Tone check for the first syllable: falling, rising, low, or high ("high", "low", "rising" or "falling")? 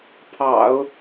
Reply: low